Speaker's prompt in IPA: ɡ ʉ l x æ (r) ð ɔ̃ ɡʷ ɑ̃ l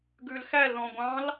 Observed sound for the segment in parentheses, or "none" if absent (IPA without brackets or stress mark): l